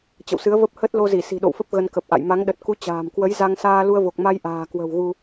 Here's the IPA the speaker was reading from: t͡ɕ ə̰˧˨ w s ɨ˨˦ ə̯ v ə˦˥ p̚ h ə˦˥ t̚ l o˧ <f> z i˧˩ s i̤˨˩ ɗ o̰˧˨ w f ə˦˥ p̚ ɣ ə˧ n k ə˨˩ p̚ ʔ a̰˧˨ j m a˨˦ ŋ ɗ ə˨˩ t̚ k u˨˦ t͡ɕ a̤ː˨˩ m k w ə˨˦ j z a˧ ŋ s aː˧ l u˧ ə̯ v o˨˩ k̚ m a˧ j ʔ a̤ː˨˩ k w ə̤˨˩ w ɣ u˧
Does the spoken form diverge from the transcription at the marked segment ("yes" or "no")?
yes